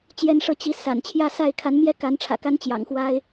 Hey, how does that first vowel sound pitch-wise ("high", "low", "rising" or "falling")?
high